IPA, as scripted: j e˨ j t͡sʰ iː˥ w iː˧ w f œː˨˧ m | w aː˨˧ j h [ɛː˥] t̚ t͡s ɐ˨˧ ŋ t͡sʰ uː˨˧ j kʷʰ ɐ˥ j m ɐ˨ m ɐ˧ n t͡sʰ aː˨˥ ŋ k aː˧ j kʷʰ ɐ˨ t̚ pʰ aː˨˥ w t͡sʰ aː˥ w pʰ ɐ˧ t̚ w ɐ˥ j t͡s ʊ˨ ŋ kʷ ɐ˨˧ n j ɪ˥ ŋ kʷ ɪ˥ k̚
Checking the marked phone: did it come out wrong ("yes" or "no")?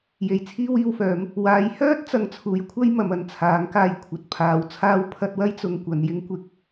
yes